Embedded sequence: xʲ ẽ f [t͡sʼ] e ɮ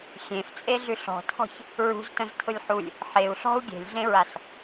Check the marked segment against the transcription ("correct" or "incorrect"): correct